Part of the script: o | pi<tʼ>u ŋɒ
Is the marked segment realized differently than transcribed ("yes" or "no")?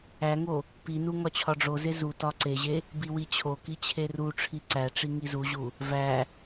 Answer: yes